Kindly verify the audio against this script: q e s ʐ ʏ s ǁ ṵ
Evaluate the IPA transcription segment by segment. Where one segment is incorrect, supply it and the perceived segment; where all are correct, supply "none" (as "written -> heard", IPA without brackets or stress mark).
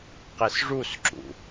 ʏ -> u